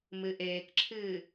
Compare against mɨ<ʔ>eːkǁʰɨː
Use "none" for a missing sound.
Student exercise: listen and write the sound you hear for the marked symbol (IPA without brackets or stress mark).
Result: ʔ